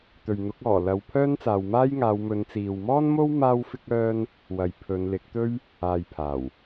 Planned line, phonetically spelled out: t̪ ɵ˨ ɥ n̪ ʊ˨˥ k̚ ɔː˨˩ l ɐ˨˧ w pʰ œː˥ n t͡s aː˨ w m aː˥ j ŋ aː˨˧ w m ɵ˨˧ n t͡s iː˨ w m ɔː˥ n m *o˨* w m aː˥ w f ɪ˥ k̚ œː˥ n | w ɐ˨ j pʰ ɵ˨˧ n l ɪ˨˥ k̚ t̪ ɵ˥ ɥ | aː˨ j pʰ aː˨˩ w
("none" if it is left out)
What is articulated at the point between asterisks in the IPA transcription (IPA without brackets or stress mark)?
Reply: o˥